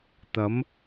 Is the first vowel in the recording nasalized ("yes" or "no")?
no